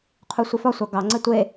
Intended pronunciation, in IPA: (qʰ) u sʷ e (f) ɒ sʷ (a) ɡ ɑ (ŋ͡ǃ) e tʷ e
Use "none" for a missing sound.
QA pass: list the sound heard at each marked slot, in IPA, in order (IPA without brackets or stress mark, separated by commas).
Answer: qʰ, f, ɑ, ŋ͡ǀ